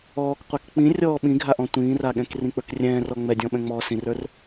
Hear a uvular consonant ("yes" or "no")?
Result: yes